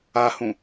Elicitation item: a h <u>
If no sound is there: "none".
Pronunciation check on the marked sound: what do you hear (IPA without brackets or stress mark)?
ũ